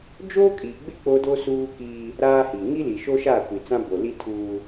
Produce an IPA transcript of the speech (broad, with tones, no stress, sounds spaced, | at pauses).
d͡ʒ oː˦ kʼ iː˨ ɡ͡b ɪ˦ k͡p o˦ d o˦ s uː˦ k iː˦ | ɾ aː˦ h i˨ ŋ i˦ l i˨ ʃ o˦ ʃ aː˦˨ kʷ i˨ t͡s ã˦ b o˨ l i˦ tʰ uː˦